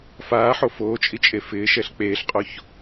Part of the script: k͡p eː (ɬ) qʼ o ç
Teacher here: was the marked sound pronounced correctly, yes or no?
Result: yes